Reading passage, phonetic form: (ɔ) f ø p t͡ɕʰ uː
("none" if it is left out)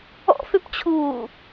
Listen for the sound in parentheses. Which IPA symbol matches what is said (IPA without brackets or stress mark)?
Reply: ɔ̰